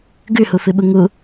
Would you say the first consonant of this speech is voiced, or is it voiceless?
voiced